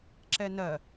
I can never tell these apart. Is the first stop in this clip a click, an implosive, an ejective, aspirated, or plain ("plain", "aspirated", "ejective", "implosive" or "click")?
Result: click